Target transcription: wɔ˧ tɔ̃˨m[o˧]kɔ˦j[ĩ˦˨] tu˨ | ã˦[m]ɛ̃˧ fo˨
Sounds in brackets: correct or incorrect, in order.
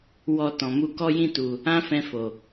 incorrect, correct, incorrect

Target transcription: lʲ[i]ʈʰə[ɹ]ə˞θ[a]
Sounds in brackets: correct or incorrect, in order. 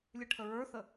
incorrect, correct, incorrect

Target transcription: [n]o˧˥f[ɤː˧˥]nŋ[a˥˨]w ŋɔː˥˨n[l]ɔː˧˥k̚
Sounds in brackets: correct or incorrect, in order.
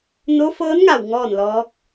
correct, correct, incorrect, correct

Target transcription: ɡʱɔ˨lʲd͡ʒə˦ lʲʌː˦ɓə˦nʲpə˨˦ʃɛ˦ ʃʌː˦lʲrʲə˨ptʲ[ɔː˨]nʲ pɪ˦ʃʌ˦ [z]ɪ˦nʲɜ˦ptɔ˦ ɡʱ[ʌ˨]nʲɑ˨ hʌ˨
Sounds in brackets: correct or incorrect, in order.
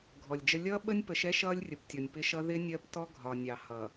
incorrect, incorrect, incorrect

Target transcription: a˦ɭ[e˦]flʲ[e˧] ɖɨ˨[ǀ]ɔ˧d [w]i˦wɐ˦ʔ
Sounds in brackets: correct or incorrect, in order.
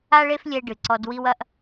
correct, incorrect, correct, correct

